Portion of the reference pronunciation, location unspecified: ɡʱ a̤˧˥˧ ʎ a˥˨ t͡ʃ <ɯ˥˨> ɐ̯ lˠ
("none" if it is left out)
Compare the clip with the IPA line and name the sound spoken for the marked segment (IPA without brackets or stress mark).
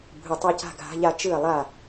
ɯ˥˨